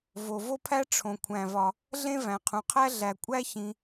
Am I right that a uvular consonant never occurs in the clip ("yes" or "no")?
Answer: no